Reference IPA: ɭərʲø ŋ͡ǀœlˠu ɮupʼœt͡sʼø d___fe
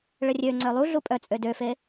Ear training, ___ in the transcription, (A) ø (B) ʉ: A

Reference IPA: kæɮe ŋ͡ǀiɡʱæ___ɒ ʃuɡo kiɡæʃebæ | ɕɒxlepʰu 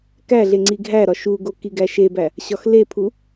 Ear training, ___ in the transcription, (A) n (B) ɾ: B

